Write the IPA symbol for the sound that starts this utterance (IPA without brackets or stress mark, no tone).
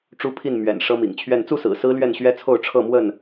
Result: ʈ͡ʂ